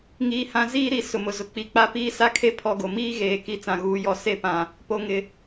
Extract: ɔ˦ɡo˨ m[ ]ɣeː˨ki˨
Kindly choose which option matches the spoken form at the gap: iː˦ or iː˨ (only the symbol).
iː˦